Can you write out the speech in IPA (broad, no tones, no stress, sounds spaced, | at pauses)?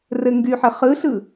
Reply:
r ɘ ŋ ɡ y ħ ɘ χ ɯ ɬ ɯ